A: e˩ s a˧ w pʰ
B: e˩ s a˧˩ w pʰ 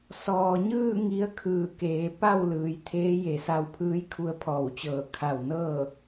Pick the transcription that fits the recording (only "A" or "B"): A